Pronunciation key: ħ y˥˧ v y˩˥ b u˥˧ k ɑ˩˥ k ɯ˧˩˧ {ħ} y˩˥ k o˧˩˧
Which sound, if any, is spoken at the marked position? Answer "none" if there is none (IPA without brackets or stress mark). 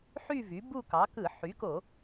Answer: ħ